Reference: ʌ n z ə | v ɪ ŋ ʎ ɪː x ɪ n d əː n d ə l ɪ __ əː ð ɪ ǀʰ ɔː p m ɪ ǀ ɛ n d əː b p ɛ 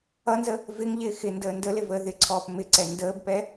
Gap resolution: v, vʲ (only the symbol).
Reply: v